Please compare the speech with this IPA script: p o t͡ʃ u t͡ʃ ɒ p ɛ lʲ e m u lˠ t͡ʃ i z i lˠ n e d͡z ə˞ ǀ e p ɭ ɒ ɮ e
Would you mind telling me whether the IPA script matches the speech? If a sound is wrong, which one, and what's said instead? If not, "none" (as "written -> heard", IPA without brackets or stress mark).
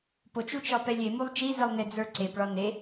ɮ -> n